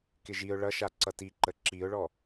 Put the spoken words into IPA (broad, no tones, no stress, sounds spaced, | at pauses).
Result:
k ɪ ʒ i ʊ̯ ɭ ʌ ʃ a ǀ ʌ t i ǃ ə ǁ i ʊ̯ ɭ ɔ